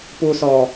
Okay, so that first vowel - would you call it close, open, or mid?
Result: close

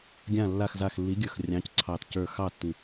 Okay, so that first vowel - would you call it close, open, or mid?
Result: open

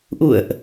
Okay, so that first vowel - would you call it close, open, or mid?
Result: close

